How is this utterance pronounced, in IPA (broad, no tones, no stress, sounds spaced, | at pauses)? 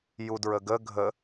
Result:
j u d ɹ ə ɡ ə ɡʱ ə